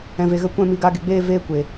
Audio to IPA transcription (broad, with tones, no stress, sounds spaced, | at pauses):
ɛ̃˨ v e˨ ɣ ə˧ kʷ ɛ̃˦˨ m i˧ ɡ a˧ ɡ e˨ ɡ͡b eː˦ v eː˦ kʷ e˨